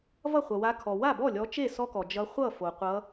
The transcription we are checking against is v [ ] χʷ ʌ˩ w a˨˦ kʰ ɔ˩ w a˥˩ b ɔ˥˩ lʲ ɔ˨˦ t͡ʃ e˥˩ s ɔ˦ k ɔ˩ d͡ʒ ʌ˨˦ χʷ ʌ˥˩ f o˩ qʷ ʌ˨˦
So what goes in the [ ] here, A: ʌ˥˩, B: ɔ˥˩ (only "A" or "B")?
A